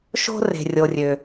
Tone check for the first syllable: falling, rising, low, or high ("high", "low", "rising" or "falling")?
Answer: high